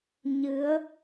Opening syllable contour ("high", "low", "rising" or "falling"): rising